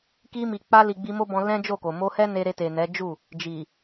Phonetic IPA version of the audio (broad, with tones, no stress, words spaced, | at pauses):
ki˧mi˨k͡pa˧li˨ ɡ͡bi˧mo˦bɔ̃˧ lɛ̃˦d͡ʒo˦˨ko˨ mo˧hɛ˦ ne˧ɾe˧te˨nɛ˨˦ d͡ʒu˦˨ | d͡ʒi˨